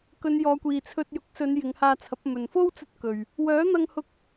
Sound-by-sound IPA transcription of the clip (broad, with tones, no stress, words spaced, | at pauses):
kɵ˨˧njɔː˨˧kʷiː˨t͡sʰɵ˧t̚ jʊ˨˥k̚sɵ˨˧n jɪ˨˧ŋhaː˧t͡sʰɐ˨˥p̚ mɵ˨nfo˥wt͡sɵ˧t̚kɵ˨ɥ | wœː˨˥n̪ɐ˧ŋhʊ˧k̚